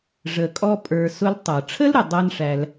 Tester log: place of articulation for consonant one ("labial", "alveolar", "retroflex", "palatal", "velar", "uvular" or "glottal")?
retroflex